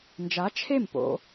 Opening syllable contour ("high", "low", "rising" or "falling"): rising